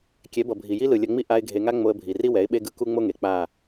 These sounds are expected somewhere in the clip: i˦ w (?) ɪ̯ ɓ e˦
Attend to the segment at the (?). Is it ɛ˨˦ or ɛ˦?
ɛ˨˦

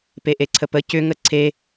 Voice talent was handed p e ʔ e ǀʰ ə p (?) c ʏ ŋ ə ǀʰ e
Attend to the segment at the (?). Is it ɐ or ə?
ə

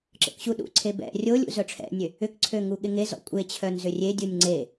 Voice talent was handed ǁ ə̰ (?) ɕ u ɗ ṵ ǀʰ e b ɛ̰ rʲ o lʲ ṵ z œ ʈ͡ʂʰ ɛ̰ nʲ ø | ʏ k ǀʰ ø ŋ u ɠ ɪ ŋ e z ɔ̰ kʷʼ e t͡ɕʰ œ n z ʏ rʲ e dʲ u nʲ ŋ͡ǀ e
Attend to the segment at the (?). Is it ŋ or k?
k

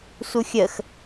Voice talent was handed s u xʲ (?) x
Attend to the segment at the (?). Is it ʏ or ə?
ə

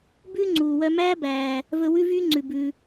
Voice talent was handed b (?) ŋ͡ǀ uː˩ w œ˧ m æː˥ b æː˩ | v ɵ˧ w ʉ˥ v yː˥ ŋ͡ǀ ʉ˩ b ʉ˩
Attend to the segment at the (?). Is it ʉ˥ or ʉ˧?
ʉ˥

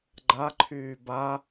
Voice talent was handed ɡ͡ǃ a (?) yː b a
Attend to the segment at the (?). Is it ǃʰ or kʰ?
ǃʰ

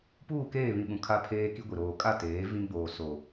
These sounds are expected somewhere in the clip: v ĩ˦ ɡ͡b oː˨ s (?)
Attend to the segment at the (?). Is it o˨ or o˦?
o˨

